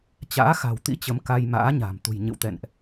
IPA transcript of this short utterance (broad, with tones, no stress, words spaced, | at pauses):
t͡ɕa̰ː˧˥xa̤˨˩wt̪ḭ˧˥ t͡ɕə˨˦mka˧jma̰ː˧˥ɲa̤˨˩m t̪ṳ˨˩jɲɨ̰˧˨wt̪ɛ̰˧˨nʔ